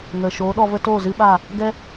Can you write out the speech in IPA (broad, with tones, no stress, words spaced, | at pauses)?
ŋə˨ ʃoː˨˦ɗɔ˧və˦toː˦˨ zɨ˦ɓa˦˨ | ɡɛ˦